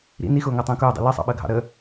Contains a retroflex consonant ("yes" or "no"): no